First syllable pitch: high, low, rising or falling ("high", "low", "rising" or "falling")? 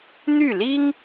falling